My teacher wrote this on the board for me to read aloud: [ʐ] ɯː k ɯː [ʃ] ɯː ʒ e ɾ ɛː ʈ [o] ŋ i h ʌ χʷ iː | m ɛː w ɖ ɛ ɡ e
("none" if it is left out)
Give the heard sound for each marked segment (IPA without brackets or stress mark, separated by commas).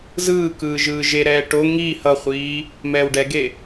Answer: z, ʒ, o